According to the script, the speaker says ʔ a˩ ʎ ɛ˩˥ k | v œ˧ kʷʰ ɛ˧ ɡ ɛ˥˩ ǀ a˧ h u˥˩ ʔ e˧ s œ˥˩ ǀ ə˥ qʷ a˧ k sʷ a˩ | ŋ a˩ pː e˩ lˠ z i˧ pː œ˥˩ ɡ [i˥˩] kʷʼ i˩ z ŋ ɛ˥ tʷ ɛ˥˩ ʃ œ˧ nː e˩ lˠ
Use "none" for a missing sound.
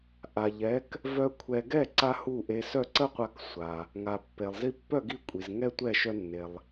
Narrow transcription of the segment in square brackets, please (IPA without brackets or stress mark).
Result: i˥˩